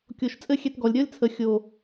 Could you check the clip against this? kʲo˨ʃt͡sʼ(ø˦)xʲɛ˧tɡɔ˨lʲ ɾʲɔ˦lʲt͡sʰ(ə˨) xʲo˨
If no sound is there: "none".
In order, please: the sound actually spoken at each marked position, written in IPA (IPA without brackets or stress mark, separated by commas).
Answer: ɘ˦, ə˨